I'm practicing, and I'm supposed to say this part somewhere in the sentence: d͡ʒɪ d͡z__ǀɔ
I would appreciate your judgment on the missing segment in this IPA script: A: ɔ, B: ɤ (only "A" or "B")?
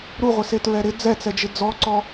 A